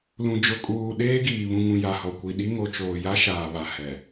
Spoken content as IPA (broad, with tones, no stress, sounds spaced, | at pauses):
l ũ˨ d͡ʒ ʊ˨ kʼ uː˨ ɗ eː˦ ɡ iː˨ β ũ˨ ŋ ũ˨ j a˨ h ɔ˨ kʷ i˨ ɗ i˦ ŋ o˨ t͡ʃ oː˨ j a˦ ʃ aː˨ β a˨ h ɛ˨